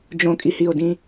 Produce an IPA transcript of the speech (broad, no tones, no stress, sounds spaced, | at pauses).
d͡ʒ õ kʼ i h i o̯ d ĩ